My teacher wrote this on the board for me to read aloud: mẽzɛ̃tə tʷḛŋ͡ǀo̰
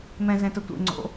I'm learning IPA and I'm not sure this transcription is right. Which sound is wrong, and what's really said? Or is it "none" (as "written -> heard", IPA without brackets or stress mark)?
ẽ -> ɛ̃